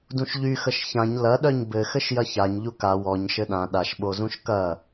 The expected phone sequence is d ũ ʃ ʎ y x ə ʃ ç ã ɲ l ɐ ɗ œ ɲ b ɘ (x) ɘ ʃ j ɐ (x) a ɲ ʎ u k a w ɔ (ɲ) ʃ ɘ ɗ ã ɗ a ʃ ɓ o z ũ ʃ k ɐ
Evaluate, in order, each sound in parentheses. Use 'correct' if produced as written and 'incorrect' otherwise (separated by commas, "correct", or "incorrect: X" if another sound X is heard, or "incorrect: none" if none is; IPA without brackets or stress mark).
correct, incorrect: ç, correct